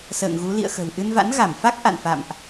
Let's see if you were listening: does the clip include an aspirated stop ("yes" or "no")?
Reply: no